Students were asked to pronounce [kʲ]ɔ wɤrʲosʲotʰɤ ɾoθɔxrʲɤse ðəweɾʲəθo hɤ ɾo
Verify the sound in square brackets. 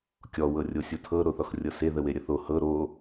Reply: correct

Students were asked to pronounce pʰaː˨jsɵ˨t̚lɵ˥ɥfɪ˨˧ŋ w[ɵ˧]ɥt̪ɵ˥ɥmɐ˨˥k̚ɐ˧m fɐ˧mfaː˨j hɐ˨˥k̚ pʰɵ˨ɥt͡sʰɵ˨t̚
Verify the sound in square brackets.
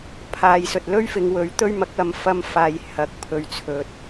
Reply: incorrect: ɵ˨˥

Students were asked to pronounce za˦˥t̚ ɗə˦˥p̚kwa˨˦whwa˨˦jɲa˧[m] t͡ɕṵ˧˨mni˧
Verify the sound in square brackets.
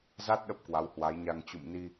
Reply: incorrect: ŋ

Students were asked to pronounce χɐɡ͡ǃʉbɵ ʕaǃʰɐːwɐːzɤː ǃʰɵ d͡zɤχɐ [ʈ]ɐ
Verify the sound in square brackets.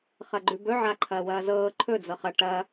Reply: correct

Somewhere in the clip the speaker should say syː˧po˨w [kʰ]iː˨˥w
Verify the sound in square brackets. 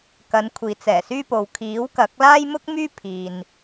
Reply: correct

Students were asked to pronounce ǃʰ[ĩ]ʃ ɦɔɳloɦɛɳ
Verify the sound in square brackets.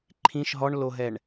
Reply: correct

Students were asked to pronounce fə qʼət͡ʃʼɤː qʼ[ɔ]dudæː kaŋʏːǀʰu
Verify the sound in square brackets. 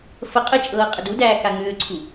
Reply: incorrect: ə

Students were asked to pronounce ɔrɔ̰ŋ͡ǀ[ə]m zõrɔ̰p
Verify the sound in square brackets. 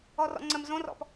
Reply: correct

